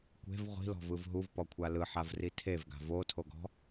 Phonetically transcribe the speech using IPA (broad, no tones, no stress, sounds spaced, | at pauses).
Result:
kʷ e̤ v ʁʷ i̤ l ɔ̤ v ɯ v ɦ u v p ɔ kʷʰ a l ɯ ħ a v r i tʰ e v ɡ a̤ v o tʰ o ɡ ɔ̤